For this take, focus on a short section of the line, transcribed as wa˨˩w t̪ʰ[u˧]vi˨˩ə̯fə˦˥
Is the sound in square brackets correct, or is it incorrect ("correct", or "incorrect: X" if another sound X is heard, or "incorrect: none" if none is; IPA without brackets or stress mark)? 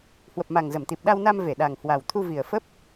correct